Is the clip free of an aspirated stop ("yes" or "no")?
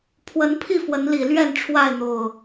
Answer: no